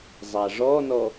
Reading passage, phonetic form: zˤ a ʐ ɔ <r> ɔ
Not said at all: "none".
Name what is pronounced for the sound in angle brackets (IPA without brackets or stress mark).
n